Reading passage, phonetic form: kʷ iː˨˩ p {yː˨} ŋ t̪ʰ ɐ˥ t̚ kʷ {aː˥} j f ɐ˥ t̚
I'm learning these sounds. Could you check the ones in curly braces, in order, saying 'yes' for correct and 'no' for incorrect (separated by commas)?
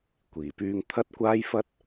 no, yes